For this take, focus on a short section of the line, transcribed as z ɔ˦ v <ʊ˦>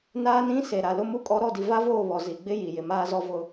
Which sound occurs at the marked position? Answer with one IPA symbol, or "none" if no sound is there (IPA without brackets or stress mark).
ʊ˦